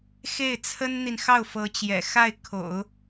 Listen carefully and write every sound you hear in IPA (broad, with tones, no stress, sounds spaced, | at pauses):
x e˥˩ ɪ̯ t͡sʰ ə˥ n n̪ i˨ n x ɑ˥˩ ʊ̯ f ɤ˧˥ t͡ɕ j ɛ̰˨˩ x a˥˩ ɪ̯ kʰ o̰˨˩˦ ʊ̯